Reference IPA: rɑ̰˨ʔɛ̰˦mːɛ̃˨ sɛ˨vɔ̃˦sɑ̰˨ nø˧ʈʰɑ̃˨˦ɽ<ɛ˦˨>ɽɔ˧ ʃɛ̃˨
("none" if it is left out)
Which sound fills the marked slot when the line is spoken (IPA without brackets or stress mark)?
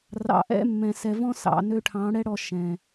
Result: ɛ˦